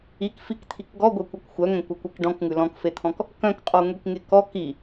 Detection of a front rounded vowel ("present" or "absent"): present